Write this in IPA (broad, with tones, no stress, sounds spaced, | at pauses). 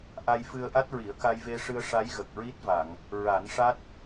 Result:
ʔ a˧ j f ɨ˧ ə̯ ʔ a˦˥ t̚ ɹ i˨˩˨ ə̯ k a˧ j v e˧ ʂ ɨ˧ ə̯ ʂ a˧˥ j ɣ ə˨˩ k̚ ɹ i˦˥ t̚ v a˨˩˨ ŋ | ɹ a˨˩˦ n ʂ a˦˥ t̚